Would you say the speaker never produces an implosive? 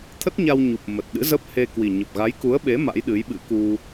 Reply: no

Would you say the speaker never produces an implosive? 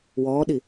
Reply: no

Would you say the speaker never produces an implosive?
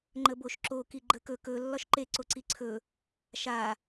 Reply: yes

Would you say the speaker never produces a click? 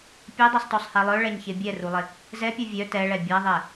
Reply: yes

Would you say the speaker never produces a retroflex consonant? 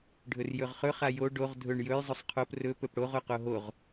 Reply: no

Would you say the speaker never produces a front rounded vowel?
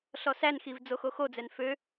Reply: no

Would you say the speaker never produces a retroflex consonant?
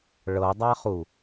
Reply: no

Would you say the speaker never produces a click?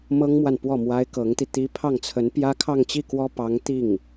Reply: yes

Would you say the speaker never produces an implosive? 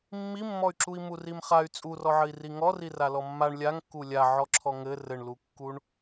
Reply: yes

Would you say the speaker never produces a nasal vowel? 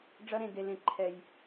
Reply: no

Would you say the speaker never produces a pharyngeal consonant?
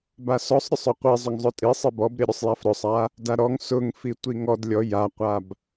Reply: yes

